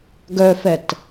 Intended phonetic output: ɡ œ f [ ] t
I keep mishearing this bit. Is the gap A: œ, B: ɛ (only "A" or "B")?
B